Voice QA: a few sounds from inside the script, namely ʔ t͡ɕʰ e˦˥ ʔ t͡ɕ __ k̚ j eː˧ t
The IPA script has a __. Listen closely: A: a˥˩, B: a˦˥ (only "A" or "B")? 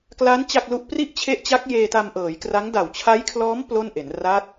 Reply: B